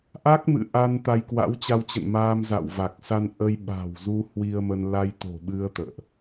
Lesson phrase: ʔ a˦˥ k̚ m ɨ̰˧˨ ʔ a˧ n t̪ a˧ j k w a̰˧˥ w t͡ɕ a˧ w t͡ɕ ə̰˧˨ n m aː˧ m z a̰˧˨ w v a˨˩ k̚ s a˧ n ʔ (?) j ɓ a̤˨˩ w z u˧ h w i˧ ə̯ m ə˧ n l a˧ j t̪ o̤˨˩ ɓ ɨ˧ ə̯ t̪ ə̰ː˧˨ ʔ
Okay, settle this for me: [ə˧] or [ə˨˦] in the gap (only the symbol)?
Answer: ə˧